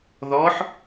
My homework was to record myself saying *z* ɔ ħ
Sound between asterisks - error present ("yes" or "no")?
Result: yes